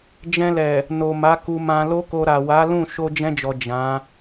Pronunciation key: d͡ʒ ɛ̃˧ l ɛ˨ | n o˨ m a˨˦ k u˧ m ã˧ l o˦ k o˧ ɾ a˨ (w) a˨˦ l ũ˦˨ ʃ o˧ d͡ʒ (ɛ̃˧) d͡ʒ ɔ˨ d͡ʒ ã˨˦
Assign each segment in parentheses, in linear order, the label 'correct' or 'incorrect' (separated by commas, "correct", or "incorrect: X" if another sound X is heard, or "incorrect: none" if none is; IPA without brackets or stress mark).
correct, correct